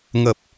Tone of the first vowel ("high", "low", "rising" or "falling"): low